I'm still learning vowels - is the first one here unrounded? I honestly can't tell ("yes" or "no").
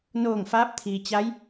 no